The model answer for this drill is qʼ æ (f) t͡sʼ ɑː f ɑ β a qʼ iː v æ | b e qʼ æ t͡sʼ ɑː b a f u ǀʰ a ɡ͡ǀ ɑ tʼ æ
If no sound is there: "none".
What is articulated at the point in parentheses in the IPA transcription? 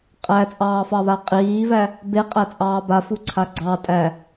none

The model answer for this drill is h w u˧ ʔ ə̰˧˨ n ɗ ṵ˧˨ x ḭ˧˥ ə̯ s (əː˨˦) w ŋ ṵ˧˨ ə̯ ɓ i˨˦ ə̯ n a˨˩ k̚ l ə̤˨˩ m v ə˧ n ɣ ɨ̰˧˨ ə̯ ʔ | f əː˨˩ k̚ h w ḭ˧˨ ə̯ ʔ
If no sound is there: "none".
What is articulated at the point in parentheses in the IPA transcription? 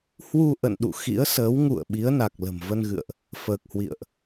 əː˨˦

